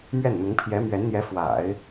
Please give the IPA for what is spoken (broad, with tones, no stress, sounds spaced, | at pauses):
m ɥ ɛ˥˩ n n̪ ʊ˧˥ ŋ pʰ j ɛ˧˥ m ɥ ɛ˧˥ n n̪ j ɛ˧˥ f w a̰˨˩˦ ɪ̯